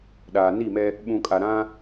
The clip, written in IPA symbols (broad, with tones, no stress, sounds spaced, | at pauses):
ɗ aː˨ n i˦˨ m ɛ˦ | ɓ ũ˨ kʼ a˨ ɾ ã˦